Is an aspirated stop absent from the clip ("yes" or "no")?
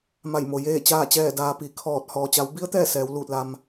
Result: no